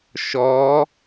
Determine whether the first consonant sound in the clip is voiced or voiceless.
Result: voiceless